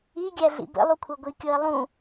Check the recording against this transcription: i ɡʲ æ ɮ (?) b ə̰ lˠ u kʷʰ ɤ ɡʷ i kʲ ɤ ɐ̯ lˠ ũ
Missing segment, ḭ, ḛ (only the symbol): ḭ